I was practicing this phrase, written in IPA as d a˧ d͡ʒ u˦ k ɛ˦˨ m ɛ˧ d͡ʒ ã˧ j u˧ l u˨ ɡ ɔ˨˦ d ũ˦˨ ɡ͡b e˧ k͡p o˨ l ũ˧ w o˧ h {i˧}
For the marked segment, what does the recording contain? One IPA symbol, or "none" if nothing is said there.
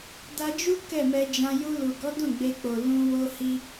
i˧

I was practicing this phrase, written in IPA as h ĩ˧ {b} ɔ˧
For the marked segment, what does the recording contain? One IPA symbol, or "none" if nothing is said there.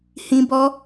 b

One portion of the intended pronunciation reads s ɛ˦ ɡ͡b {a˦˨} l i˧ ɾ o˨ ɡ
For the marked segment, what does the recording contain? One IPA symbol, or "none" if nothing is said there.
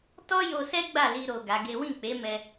a˦˨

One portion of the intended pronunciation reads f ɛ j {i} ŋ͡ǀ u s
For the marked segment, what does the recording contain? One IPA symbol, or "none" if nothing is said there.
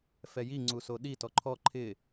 i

